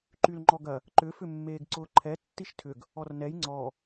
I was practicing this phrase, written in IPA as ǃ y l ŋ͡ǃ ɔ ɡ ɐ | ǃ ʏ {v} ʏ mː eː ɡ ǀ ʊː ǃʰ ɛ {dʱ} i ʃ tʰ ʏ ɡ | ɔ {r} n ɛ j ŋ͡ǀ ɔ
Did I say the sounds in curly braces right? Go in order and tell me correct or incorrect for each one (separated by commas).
incorrect, incorrect, correct